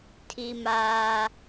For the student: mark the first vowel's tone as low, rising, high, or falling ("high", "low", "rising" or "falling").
high